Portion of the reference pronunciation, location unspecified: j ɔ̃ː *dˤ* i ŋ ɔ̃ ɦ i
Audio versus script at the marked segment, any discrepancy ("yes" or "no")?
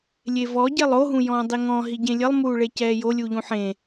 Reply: no